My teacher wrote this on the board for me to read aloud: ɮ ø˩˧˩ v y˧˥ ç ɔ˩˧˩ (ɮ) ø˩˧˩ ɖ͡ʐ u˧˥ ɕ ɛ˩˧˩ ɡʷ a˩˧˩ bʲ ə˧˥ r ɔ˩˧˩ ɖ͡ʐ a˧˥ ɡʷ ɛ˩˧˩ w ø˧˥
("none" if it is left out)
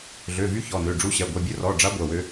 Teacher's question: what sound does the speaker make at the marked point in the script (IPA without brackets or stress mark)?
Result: n